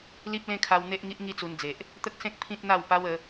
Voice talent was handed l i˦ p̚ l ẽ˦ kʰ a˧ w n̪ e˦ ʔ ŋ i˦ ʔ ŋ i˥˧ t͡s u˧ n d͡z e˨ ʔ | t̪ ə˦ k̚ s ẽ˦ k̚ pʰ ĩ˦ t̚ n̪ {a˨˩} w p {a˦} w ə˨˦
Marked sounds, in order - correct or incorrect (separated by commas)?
incorrect, incorrect